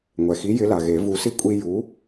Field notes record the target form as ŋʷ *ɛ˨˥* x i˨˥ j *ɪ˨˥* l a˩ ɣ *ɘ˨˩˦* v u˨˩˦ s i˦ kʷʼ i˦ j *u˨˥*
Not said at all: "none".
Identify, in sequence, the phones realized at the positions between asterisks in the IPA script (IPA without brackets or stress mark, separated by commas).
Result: ɛ˩, ɪ˨˥, e˨˩˦, u˨˥